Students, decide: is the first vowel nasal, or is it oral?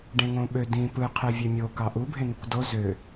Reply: nasal